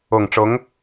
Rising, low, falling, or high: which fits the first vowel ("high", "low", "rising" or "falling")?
low